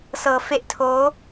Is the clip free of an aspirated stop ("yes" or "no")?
no